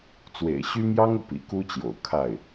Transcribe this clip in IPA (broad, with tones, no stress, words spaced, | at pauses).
t͡swḛ˨˩ɪ̯ɕy˥mjɑ˥ŋɤ˨ pḭ˨˩ku˥t͡ɕjo̰˨˩ʊ̯ kʰa˥˩ɪ̯